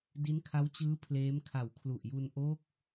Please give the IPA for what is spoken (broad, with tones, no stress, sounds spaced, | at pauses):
d i˦˥ n kʰ a˦˥ w t͡ɕ ɯː˦˥ pʰ l eː˦˥ m kʰ a˨˩ w kʰ l u˨˩ ʔ j u˧ n ʔ o˦˥ k̚